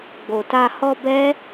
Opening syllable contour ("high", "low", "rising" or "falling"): low